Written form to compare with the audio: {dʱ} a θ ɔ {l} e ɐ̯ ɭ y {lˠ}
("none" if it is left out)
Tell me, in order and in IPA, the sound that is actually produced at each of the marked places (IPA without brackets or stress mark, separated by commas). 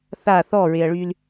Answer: θ, ɹ, l